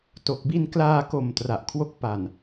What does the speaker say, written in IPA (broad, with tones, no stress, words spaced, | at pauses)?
to˨˩k̚bi˧n klaː˧ko˨˩m tra˨˩ʔkʰwo˦˥k̚ pa˨˩n